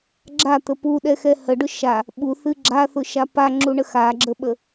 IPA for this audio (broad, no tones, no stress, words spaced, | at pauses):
ɡ͡ǁat̪ə puɗɛxɛ həɖʊ ʃa | ɓuθɨ ɡ͡ǁaθʊʃa paŋ͡ǁuɳə xaɡ͡ǁəɓə